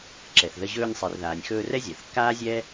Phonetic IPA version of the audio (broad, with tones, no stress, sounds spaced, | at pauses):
ǁ ɛ˩ θ ð ə˧ ʑ ɵː˧ nʲ sˤ e˩ r ð aː˩ nʲ x ɵː˧ r ɛ˥ zʲ a˩ θ kː aː˥ zʲ ɛː˥